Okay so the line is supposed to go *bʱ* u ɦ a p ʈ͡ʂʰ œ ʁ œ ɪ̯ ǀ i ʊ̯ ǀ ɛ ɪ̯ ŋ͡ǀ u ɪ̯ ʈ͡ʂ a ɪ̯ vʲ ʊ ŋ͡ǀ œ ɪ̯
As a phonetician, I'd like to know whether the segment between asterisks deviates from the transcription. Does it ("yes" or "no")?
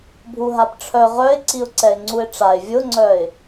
no